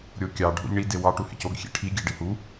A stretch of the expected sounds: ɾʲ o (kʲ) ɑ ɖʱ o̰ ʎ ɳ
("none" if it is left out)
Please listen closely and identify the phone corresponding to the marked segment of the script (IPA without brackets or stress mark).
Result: kʲ